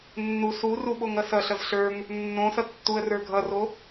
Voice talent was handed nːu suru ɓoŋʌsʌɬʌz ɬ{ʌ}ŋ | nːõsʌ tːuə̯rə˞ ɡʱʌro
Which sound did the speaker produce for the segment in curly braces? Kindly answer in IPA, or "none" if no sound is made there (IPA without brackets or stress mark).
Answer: ə˞